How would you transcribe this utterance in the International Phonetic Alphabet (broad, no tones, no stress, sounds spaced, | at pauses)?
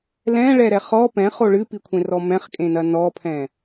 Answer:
l ɛ̃ ɭ ɛ ɾ ɛ χ ɔ p ɛ̃ χ o ɭ ɨ p i kʷʰ ẽ r ɔ m ɛ̃ χ kʼ ẽ n ɐ n ɔ pʰ ɛ̃